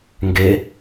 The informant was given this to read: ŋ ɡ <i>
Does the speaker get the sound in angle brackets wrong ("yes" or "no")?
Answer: yes